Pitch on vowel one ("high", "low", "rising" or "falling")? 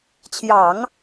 low